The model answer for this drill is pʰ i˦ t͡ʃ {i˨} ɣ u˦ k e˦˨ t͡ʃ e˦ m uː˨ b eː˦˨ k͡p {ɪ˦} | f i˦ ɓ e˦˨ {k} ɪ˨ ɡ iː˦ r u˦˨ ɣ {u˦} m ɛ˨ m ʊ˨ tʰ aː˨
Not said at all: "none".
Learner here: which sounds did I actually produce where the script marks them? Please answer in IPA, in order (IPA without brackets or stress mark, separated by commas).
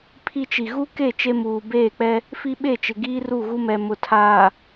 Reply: i˨, ɛ˦, t͡ʃ, u˦